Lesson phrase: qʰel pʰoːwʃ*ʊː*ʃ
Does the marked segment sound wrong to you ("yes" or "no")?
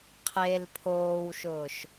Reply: no